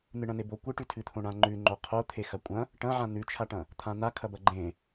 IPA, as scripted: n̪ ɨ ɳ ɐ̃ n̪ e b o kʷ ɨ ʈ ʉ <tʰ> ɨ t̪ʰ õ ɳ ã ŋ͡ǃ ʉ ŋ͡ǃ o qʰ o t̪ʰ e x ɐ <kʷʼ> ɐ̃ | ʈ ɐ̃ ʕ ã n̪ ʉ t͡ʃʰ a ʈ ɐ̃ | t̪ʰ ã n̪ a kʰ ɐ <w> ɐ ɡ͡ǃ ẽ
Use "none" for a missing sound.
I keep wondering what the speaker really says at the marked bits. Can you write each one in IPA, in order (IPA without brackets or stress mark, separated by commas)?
tʰ, kʷʼ, b